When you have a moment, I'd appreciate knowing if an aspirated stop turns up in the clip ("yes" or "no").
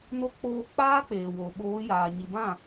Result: no